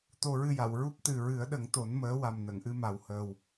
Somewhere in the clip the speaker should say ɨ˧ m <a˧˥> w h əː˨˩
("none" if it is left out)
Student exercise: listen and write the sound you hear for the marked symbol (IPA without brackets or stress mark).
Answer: a˨˩